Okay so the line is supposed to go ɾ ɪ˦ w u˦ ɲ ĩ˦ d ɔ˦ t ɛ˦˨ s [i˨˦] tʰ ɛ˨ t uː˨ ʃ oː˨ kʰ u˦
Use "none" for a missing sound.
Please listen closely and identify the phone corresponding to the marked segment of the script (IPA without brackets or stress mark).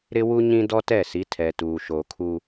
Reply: i˨˦